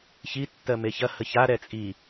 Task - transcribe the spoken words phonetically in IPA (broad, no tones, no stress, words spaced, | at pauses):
çi tːɜmeçɐ həça ɾɛt͡sʼi